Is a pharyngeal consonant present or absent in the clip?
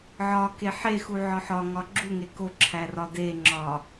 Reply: present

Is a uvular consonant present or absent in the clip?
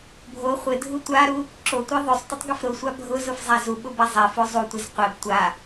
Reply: present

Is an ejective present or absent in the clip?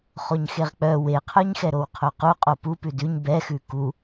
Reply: present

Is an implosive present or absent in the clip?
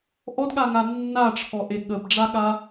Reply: present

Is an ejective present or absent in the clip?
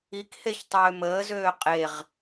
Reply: present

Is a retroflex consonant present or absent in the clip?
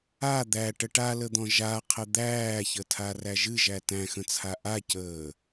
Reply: present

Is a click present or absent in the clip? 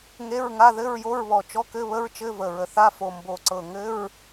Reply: present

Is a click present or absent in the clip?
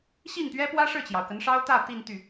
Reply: absent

